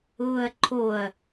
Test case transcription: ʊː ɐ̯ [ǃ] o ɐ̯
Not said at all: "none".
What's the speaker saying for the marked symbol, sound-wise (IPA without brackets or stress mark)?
ǃʰ